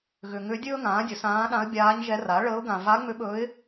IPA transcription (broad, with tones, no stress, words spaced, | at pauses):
ɣʏ˨ŋʏ˧˥dʲɵː˥ŋãː˩˥ dʲɵ˩˥sãː˧˥ ɗã˧˥ə̯bʲaː˧˥ɲʒɛ˧˥ ra˩˥ɭəː˧˥ʊ̯ ɡã˨ va˧˥ŋ͡mʏ˧˥ɓɵ˧˥ɪ̯